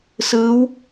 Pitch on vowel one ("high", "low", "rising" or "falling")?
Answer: rising